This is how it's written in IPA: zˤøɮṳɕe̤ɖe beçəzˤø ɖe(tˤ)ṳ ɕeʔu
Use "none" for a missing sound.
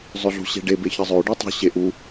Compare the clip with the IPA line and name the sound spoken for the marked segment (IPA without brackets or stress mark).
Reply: tˤ